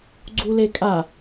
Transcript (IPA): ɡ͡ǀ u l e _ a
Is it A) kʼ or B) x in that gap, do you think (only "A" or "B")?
A